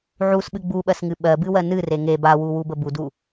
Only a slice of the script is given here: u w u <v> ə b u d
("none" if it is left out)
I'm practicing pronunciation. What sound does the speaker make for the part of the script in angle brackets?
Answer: b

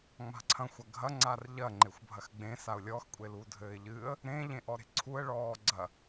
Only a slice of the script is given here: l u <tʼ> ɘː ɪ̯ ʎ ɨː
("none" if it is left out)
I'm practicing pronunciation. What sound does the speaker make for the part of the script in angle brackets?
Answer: dʱ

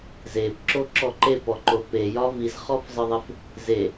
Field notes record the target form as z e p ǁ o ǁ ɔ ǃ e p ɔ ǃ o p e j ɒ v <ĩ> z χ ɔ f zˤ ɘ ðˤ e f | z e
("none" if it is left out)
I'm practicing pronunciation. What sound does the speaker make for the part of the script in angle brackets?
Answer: i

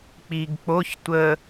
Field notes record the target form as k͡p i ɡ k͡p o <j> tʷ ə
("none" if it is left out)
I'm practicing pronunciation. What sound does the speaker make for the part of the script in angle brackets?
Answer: ç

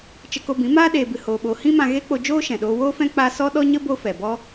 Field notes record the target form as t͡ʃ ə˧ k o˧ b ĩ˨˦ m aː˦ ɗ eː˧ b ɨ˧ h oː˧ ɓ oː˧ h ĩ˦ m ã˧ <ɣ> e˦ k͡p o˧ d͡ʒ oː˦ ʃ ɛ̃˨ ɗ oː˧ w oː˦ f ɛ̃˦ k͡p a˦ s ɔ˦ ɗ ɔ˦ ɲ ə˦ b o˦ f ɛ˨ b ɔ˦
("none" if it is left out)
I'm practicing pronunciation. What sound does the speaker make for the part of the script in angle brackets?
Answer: ɣ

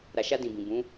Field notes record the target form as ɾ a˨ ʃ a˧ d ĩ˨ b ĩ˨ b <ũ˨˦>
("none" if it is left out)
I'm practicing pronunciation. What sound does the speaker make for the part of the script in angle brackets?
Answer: ũ˨˦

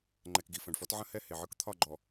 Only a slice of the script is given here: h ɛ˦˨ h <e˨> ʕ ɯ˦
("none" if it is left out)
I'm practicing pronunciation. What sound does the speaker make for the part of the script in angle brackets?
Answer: e˨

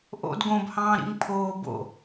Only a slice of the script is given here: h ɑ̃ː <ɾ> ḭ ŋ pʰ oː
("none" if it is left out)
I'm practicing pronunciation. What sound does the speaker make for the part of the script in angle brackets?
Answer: ɾ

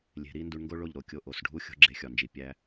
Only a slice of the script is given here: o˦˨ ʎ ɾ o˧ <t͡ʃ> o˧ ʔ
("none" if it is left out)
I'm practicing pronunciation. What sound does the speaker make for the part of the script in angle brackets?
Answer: kʲ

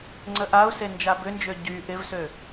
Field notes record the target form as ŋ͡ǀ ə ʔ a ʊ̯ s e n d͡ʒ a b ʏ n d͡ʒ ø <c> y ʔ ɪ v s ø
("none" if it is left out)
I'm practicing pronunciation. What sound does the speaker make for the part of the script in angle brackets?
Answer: ɟ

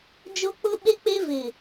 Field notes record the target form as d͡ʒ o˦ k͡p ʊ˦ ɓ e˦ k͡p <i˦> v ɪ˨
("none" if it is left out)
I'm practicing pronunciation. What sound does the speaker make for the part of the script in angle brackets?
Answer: e˦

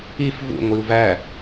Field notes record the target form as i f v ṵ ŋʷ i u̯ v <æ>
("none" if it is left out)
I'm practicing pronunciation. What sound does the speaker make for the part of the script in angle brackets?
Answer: æ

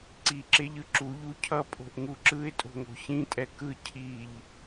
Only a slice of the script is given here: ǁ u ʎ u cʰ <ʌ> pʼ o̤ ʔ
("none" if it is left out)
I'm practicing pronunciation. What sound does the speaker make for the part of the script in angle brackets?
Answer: ʌ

